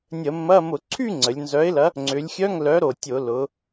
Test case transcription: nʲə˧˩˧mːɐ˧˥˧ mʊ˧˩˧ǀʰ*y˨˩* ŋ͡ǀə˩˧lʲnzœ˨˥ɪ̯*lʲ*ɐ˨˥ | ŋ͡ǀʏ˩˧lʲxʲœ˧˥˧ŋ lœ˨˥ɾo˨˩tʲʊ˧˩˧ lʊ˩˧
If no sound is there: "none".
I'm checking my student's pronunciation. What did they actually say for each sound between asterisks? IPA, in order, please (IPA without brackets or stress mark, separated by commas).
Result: y˥˧, l